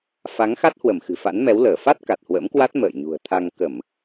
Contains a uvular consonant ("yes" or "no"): no